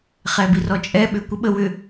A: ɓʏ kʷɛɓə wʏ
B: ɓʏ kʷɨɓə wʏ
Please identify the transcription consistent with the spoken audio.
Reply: B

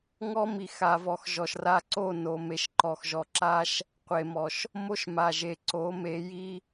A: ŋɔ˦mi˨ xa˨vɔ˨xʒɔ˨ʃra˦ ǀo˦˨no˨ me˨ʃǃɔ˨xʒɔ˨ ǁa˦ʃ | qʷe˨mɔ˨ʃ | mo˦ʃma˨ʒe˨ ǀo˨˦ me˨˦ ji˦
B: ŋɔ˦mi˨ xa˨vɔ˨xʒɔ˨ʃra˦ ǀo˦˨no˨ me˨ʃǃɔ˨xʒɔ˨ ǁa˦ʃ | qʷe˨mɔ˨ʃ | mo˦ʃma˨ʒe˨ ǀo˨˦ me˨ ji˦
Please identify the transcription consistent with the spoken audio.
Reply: A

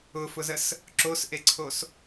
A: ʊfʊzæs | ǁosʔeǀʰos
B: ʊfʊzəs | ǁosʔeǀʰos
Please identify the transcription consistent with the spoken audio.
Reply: B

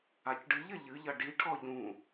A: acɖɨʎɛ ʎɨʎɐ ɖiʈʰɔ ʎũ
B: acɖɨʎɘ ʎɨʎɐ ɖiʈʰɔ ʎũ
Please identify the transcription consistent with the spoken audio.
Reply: B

